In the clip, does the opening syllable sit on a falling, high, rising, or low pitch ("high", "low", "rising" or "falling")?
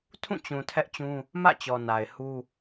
falling